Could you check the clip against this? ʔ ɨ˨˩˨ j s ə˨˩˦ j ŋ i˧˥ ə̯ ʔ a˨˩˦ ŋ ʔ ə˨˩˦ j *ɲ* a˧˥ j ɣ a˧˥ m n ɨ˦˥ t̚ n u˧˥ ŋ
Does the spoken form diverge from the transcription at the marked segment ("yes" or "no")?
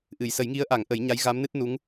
no